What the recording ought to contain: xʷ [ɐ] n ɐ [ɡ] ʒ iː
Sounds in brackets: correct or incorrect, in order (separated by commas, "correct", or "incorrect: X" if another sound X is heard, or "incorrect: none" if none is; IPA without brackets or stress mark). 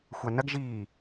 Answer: incorrect: a, correct